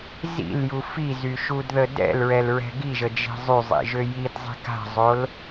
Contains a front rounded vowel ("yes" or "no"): yes